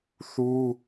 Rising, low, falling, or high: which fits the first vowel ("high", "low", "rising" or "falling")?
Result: high